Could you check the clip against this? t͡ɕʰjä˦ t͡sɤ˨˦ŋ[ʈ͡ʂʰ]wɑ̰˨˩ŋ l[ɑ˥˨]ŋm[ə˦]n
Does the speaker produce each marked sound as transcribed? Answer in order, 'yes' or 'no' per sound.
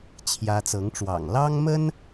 no, no, yes

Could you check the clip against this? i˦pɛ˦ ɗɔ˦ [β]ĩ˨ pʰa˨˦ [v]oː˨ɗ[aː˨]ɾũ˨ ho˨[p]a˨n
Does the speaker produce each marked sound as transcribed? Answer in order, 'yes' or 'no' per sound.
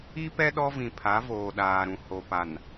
no, yes, yes, yes

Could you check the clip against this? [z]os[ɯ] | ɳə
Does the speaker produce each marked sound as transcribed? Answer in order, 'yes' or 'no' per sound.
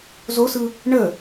yes, yes

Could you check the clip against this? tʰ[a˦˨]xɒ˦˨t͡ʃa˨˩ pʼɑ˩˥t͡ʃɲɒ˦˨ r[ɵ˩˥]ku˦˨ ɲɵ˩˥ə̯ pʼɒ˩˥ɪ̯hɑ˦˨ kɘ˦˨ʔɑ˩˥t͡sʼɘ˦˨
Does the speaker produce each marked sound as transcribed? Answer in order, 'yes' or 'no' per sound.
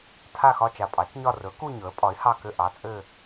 yes, yes

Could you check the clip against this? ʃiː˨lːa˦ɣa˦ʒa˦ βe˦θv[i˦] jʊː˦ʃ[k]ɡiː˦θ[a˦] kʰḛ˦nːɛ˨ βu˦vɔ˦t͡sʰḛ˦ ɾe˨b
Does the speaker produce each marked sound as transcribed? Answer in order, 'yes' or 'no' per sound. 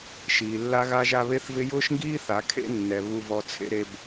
no, no, no

